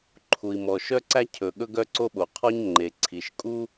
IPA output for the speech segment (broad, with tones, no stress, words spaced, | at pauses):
ǃʰu˩i̯mɔ˩ ʃœ˥ǀæ˥ cʰɵ˩ ɠɵ˥ɡœ˥ǀo˥ɓo˩ qʰɔ˥ɲŋ͡ǃe˩ ǀʰi˩ʃkʼu˥